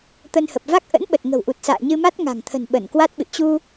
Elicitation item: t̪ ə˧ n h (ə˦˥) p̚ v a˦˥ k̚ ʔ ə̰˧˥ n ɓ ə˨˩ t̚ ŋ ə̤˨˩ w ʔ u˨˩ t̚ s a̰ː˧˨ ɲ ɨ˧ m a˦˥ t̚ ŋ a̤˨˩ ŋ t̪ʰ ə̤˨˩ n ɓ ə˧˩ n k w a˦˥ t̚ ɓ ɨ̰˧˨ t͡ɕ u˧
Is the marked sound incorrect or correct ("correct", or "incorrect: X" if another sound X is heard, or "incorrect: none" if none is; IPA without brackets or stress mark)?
incorrect: ə˨˩